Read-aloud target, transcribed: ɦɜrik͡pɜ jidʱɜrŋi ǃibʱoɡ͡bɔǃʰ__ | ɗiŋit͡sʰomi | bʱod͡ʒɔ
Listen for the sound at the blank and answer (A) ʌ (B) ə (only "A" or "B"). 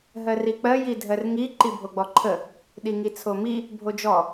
B